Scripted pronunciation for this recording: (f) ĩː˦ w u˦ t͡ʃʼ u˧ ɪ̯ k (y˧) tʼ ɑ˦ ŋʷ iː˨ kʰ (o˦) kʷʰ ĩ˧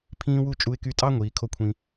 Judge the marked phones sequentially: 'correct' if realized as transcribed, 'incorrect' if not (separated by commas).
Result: incorrect, correct, correct